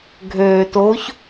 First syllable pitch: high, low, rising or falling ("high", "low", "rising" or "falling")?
low